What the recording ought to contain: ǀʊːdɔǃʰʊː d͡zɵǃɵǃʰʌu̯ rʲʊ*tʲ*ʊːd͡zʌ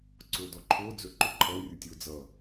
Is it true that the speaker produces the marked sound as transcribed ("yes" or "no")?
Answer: yes